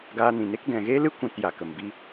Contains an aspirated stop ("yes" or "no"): no